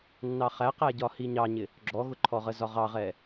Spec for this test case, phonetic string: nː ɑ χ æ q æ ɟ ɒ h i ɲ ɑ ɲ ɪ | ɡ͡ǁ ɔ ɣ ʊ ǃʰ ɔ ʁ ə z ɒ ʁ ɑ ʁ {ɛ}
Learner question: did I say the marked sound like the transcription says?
yes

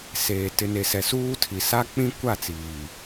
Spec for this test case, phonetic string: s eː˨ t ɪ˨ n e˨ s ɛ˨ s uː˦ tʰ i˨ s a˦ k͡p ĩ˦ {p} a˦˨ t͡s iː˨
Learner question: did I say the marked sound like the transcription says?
no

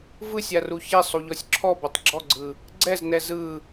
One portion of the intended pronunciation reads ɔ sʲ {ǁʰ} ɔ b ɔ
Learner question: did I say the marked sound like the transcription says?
yes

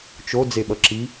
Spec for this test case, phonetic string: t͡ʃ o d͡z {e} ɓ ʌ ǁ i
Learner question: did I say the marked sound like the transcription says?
yes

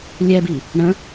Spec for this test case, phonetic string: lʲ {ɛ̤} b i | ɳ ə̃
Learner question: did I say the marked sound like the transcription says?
no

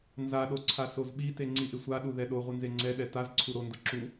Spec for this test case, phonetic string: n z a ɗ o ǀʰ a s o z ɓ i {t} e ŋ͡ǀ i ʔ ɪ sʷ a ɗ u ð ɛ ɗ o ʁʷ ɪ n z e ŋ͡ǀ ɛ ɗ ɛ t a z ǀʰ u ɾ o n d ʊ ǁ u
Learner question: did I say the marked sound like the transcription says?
yes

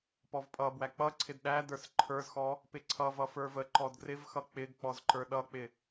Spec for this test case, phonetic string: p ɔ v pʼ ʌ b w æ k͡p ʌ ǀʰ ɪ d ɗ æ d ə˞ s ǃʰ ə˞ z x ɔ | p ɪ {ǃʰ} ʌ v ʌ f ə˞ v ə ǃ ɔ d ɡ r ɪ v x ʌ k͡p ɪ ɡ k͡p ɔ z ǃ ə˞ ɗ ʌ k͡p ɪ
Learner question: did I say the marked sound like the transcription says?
no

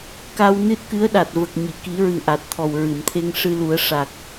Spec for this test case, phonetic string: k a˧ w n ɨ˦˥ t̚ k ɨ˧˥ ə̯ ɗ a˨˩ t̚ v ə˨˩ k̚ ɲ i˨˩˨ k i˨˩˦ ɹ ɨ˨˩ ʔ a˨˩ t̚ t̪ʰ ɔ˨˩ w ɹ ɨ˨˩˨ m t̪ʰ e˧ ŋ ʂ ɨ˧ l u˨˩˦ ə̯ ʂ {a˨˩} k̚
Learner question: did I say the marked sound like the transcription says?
yes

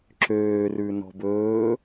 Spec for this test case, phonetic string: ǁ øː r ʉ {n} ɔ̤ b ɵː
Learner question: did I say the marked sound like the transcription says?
yes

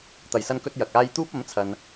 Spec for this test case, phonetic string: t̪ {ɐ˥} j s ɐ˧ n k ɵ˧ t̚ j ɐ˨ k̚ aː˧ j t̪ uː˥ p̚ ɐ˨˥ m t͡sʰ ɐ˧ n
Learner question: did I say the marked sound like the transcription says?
no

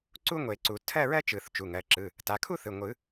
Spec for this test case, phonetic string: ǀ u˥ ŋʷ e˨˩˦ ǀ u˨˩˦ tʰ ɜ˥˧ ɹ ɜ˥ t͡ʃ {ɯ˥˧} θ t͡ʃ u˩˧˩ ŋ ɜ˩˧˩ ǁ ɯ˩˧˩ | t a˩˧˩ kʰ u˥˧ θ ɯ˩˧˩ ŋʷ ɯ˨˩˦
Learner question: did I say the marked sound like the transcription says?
no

